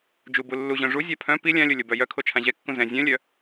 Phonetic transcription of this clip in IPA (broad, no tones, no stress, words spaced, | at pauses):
d͡ʒubu lːuʑœ̃ ʐuzʲa pʰœ̃ pi lʲãlʲo lʲobœjœkʰo t͡ʃʰãʑɛkːũ zɛ̃ zʲœ̃lʲœ